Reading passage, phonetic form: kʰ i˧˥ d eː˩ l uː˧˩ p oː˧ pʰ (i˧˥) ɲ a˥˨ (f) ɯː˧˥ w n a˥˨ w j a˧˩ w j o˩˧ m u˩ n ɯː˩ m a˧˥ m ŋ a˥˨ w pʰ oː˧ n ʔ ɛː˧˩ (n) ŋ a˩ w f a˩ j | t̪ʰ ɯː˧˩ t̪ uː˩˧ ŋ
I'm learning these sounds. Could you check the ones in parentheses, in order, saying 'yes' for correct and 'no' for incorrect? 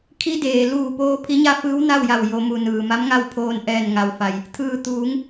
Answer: yes, yes, yes

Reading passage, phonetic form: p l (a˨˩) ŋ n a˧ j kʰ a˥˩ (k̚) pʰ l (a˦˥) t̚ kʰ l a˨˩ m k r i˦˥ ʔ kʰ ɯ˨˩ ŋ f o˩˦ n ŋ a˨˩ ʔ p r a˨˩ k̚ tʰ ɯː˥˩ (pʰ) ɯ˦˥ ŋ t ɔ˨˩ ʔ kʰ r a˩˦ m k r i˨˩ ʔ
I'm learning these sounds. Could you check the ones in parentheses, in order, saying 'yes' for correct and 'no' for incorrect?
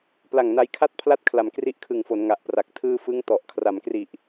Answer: yes, no, yes, no

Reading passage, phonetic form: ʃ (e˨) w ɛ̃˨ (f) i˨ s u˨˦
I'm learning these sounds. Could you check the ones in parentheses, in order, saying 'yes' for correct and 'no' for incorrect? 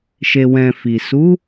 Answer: yes, yes

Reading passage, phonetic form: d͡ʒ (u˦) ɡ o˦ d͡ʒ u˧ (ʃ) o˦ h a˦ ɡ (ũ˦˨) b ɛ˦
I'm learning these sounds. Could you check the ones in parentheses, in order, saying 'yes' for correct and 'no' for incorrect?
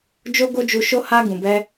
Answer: no, yes, no

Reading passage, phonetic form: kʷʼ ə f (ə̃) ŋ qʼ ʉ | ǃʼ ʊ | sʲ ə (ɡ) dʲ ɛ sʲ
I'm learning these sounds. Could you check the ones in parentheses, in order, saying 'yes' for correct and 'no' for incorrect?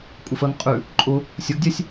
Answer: no, yes

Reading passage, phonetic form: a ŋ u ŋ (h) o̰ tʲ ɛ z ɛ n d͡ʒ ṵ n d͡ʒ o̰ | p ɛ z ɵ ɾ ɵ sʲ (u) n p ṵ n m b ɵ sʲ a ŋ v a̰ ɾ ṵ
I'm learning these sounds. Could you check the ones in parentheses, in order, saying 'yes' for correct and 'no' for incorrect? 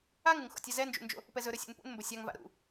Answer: no, no

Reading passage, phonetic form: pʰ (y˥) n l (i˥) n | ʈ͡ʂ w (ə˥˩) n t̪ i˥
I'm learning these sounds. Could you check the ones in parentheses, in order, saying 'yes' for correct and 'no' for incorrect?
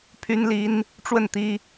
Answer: yes, yes, yes

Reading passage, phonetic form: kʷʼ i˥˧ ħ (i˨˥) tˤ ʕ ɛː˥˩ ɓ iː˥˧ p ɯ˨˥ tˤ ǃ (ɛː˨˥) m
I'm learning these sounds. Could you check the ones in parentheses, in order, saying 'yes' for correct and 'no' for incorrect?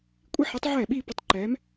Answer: yes, yes

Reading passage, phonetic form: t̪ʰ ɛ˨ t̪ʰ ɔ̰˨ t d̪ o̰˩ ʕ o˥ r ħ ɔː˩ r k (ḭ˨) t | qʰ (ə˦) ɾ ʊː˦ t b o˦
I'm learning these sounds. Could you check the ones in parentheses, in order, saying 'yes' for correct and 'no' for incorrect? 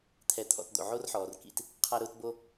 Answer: yes, no

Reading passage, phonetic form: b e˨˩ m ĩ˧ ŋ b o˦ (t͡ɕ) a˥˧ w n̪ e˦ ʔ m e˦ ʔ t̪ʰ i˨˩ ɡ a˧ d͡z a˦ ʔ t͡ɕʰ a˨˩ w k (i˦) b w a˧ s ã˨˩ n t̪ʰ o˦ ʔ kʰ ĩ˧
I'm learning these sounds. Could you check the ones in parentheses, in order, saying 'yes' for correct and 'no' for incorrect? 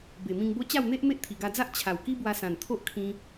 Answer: yes, yes

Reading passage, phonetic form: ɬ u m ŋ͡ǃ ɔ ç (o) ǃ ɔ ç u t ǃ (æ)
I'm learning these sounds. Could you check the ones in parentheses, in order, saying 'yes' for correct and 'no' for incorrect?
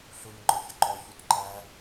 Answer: no, yes

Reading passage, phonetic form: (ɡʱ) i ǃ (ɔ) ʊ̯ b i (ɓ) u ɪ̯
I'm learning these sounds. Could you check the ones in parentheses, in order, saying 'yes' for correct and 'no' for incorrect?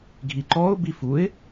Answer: yes, no, no

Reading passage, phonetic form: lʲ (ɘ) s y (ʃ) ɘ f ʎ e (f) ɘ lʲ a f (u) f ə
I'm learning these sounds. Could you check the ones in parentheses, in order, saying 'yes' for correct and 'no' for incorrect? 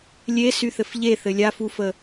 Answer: no, no, no, yes

